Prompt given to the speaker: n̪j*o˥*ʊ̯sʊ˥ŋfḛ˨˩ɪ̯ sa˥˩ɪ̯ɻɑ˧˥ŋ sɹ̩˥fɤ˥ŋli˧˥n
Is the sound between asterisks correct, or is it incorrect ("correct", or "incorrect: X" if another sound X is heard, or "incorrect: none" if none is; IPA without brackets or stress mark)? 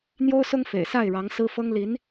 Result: correct